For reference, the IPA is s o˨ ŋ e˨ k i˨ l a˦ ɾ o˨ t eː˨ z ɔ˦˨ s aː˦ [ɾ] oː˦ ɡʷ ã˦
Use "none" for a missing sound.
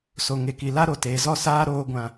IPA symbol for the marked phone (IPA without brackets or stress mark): ɾ